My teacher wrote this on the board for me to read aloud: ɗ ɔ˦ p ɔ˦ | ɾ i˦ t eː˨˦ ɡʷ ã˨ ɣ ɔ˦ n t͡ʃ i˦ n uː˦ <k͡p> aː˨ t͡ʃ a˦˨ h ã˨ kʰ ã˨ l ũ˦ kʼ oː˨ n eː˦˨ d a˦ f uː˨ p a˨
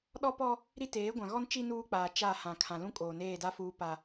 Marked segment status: correct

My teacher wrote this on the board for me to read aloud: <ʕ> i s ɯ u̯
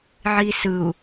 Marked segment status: correct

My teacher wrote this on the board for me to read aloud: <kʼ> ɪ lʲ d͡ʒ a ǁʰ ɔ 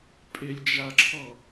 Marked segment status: incorrect: pʼ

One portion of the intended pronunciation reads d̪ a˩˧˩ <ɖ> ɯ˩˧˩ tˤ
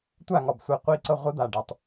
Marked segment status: correct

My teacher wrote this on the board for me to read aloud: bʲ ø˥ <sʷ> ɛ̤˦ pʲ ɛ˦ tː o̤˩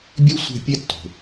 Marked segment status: correct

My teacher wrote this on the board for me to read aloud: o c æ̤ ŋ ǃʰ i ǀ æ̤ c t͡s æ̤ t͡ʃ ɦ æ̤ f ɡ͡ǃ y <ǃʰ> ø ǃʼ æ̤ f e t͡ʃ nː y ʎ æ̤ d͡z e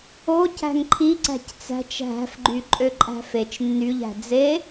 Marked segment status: incorrect: ǃʼ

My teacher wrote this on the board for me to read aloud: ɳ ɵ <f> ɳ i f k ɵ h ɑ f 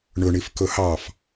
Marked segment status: incorrect: none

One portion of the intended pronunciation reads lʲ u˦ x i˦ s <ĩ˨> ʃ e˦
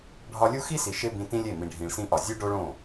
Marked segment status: incorrect: i˨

